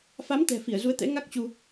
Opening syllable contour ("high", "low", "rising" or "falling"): rising